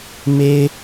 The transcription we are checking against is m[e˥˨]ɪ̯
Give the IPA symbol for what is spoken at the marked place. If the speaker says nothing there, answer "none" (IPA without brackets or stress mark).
e˦